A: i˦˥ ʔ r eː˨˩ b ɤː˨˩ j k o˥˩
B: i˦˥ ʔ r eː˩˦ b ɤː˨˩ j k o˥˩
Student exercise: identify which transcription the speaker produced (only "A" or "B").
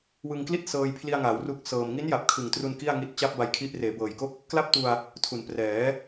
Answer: B